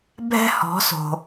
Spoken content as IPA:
bʱ ɛ̤˥ h ɔ̤˩˥ s o̤˩

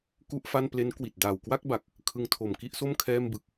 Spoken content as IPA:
k u˥˩ ʔ f a˥˩ n p l e˦˥ n k w i˨˩ t̚ d aː˨˩ w k w a˥˩ k̚ b a˨˩ k̚ | kʰ ɯ˧ ŋ tʰ o˨˩ m k i˥˩ ʔ s o˥˩ m kʰ ɛː˥˩ m b ɯ˦˥ k̚

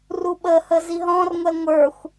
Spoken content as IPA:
r u ɓ ə h ə z i ɦ ɔ̃ r ŋʷ ɛ ŋʷ ə˞ xʷ

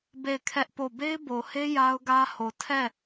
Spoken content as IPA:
b e˦˨ ɪ̯ kʰ ɛ˦ ʔ p o˦˨ b e˦ ɪ̯ b o˨ h e˦ j a˦ ʊ̯ ɡ ä˦ h o˨ tʰ ɛ˦˨

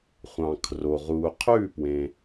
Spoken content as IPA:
χʷ ɑ̃˩ kʰ r o˩ ʁ u˩ qʰ ʉ˥˩ p w ẽ˩

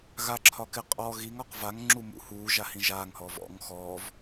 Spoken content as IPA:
ɣ a ǁʰ ɒ k ɪ qʼ ɔ ɣ i ŋ ɒ q v a ŋ ŋ͡ǁ u m ṵ h uː ʒ a h ĩ ʒ aː ŋ h ɔː v ɔ̰ ŋ x ɔː v

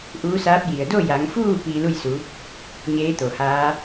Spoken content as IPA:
ʔ uː˧˥ s aː˧˥ p̚ j i˩ ə̯ d o˥˨ j a˩˧ ŋ f uː˥˨ p iː˧ l u˥˨ j s u˩˧ | ɲ eː˧˥ t̪ o˩ h aː˧˥

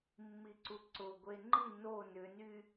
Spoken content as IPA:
mː i ǀ u ǀ ʊ ɡʷ e ŋ͡ǃ i n o n ʏ n y

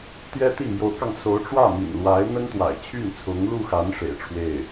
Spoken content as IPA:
t̪ j ɛ˥ t̪ i˥˩ m j o˧˥ ʊ̯ k ɑ˧ ŋ s o˧˥ ʊ̯ ʈ͡ʂ w ä˥˩ m ḭ˨˩ n l w a˧˥ ɪ̯ n̪ ə˥ n t̪ w a̰˨˩ ɪ̯ t͡ɕʰ y˥˩ n t͡sʰ ʊ˧˥ ŋ l u˥˩ x a˧˥ n ʂ ḛ˨˩ ɪ̯ ʈ͡ʂʰ w e˥˩ ɪ̯

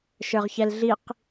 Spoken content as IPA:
ʃ ə˞ ʁ ç ɛ l ɮ i q

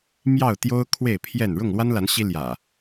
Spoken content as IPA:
m j ɑ˥˨ ʊ̯ t̪ j o˦ ʊ̯ kʰ w e˥˨ ɪ̯ pʰ j ɛ˥˨ n ɻ ʊ˥˨ ŋ l w a˦ n l a˨˦ n ɕ i˦ l j ä̰˨˩

